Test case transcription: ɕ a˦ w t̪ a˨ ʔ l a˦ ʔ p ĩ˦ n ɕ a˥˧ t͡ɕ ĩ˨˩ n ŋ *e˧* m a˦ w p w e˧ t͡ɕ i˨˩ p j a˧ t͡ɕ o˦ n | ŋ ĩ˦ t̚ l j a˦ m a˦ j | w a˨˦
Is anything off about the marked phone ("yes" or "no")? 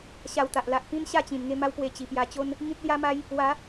yes